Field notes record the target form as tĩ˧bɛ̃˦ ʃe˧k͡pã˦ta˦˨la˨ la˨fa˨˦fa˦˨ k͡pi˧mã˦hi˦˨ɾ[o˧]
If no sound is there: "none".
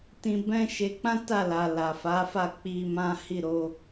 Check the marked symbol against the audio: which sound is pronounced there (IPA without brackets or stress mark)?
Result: o˧